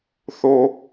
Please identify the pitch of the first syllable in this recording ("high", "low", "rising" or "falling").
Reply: high